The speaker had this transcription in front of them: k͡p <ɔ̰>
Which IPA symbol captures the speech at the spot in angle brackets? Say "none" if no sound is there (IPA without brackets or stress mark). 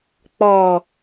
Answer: ɔ